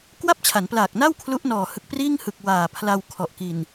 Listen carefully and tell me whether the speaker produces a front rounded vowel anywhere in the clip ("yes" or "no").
no